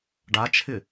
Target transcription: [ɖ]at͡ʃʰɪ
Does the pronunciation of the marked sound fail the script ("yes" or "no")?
no